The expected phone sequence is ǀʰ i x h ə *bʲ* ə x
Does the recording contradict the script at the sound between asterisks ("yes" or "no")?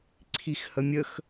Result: yes